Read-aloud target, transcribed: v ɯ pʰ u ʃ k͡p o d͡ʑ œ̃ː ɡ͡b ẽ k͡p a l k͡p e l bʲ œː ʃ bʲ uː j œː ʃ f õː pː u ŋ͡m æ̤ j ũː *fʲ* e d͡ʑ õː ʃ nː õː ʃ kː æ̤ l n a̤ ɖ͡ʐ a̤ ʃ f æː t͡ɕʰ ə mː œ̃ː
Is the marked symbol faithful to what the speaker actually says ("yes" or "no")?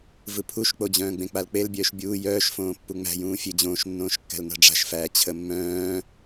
yes